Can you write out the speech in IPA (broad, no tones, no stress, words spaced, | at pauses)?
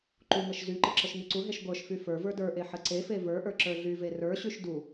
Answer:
ǃuŋəʃ zyǃə ǁəʃŋyǀuɦeʃ ɡʷə˞ʃfy fə˞ və˞də˞ʔe ħəǀefe və˞ʔə˞ ǁə˞ɮyve rə˞ɕyʃ du